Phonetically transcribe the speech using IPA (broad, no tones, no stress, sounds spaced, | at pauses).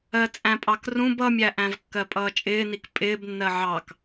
ɜ t͡sʼ æ̃ pʼ ɑ k r ũ b ʌ mʲ æ ʔ æ̃ v kː ɜ pʼ ʌː t͡ʃʼ ɪː n i k pʼ ɪː b nː ɜ ʕ ɑ k